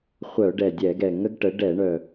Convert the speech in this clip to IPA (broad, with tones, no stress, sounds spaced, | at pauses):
χʷ œ˧˩˧ ɖ ɛ˨˩ dʲ ɛ˧˩˧ ɡ ɛ˨˩ ŋ ə˦ ɡ ʈ ə˩˥ ɖ ɛ˧˩˧ ɳ œ˨˩